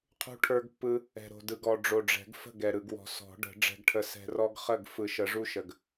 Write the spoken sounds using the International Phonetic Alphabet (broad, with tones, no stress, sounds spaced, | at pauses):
qʰ ṳ˦ ʈʰ ə˞˦ ɡ pː ɯ˦ | ɛ̤˨ ɾ o̤˨ d ɯ˨ ɡ ɔ˨ ɖ͡ʐ o˨ ɖ͡ʐ ɛ̤˨˩˦ ɡ f ə̤˥˩ ɡ ɛ˨ ɾ ɯ˨ ɡ w ɔ̤˨ s ɔ̤˨˩˦ ɖ ə̤˨˩˦ ɖ͡ʐ ɛ̤˦ ɡ ʈʰ ə˦ s ɛ̤˦ r ɔ˦ ɡ χ ə˥˩ ɡ f ɯ˨˩˦ ʃ ə˨˩˦ ʐ u˦ ʃ ə˨ ɡ